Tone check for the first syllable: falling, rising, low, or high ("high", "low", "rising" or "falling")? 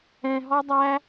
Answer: low